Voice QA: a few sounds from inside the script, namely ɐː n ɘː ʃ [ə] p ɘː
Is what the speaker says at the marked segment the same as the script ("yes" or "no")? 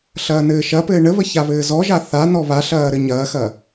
no